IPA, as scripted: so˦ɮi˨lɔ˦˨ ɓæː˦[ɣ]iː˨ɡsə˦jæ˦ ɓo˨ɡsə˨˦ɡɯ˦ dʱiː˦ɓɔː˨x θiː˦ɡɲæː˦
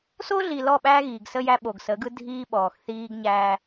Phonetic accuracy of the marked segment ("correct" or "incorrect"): correct